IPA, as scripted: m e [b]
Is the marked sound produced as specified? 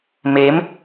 no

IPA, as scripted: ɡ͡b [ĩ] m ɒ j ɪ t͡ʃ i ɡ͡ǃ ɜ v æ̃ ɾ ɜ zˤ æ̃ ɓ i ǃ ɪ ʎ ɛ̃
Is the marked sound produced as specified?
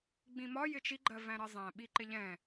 yes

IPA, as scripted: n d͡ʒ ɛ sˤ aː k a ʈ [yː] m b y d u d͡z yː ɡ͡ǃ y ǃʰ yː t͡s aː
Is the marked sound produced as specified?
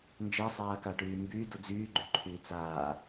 yes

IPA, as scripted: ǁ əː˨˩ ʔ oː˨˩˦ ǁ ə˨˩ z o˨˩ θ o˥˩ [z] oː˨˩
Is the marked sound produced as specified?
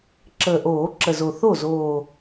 yes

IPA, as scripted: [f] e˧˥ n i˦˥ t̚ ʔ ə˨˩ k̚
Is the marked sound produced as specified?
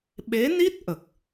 no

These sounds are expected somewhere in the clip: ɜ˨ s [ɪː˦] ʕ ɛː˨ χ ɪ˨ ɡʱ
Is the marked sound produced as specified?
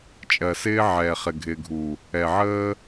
yes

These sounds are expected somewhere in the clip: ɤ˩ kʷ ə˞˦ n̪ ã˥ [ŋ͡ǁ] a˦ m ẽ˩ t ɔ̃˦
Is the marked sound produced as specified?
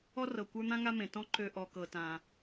no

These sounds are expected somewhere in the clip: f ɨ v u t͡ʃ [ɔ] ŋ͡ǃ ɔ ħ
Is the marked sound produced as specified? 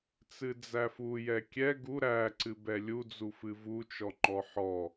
yes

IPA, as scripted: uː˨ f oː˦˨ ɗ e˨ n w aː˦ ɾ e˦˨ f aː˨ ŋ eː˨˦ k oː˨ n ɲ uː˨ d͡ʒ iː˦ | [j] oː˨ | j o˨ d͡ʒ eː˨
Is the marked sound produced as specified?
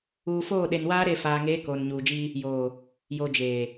yes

